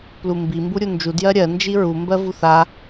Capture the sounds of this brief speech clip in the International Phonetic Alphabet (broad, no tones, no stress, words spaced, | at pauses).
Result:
plumbi mbuɾʲund͡ʒu djɜɾʲɜ nd͡ʒiɹu mbɜvuθa